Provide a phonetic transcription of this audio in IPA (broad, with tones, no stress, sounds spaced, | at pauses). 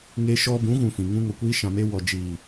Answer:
ŋ e˧ ʃ ɔ˧ b ũ˨˦ ɣ ũ˨ f ĩ˨ ŋ ũ˧ ŋ o˨ kʷ iː˧ ʃ ã˨ m e˧ w ɔ˨ d͡ʒ iː˨